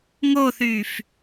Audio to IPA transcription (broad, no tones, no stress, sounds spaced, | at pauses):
ŋ o θ yː f